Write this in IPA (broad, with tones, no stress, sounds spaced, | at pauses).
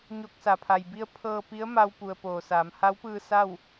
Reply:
ɲ o˧ k̚ s a˩˧ pʰ a˩ j b i˧ ə̯ pʰ ɤː˧ p i˧˥ ə̯ m a˧ w p u˩ ə̯ p oː˩ s aː˩˧ m h a˧˥ w p ɯː˧ s a˥˨ w